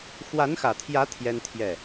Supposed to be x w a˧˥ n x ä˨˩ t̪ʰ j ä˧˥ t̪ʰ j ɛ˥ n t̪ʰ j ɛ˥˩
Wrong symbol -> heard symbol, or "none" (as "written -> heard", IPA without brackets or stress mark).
none